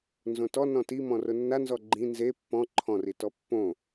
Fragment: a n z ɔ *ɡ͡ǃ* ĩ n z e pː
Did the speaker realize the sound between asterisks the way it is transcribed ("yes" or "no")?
yes